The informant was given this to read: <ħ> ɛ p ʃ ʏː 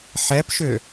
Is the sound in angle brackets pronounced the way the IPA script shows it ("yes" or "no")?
yes